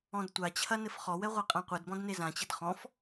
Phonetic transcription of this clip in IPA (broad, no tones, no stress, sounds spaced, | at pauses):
ɔ̃ d tʷ a t͡ɕʰ ɐ n ɘ f χ ɔ w ɛ ʁʷ ɛ qʼ ã qʷ ɘ d b ɔ̃ d n e z ã t͡ɕ ɘ d χ ɔ̃ f